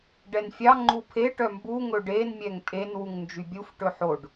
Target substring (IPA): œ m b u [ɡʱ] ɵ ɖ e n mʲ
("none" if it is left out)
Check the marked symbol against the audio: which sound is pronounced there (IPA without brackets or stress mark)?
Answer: ŋ